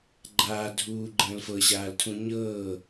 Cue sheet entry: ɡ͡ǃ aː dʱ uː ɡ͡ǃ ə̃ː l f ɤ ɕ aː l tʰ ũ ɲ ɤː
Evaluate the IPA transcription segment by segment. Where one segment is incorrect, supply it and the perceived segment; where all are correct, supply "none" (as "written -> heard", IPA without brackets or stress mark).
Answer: none